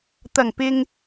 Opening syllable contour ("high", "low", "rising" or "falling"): low